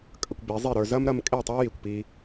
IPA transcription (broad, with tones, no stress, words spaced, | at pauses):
kʼə˧kʷbi˨˦zˤi˦˨ɾə˞˧ zɐ˦mɾɐ˧mkʼe˦˨tˤə˞˦ ji˨kʷpi˧